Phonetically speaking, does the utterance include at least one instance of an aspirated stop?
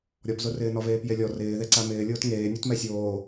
no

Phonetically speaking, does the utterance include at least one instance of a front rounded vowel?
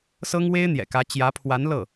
no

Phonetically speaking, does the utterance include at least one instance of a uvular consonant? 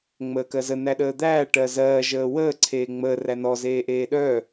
no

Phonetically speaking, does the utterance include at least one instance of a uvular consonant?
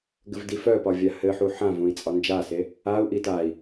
no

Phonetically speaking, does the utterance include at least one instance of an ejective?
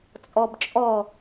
yes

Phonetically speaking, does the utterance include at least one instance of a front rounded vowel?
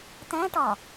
no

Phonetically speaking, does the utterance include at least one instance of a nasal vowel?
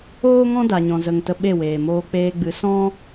yes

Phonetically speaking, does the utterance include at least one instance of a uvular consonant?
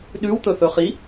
yes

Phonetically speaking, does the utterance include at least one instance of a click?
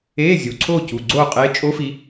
yes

